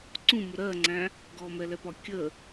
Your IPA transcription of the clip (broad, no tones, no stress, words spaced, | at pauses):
ǀũmʊ ɾɜŋ͡ǀæ̃ | ɡɔmɛlɛpɒ kʲə